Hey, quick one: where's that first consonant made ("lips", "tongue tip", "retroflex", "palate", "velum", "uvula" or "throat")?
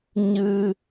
palate